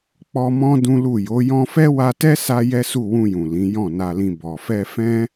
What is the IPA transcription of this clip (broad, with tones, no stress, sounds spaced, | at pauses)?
k͡p ɔ˧ m ɔ̃˦ d ũ˦ l u˦˨ j o˨˦ j ɔ̃˧ f ɛ˦ w a˧ t ɛ˦ s a˦ j ɛ˦ s u˦˨ w ũ˧ j ũ˨ l ĩ˨˦ j ɔ̃˦˨ n a˧ l ĩ˧ b ɔ˨ f ɛ˧ f ɛ̃˦